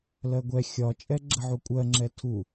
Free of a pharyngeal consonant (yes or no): no